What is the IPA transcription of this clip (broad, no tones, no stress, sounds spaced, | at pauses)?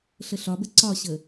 ɬ ə ɬ ɒ b ə ǀ ɒ ɕ ə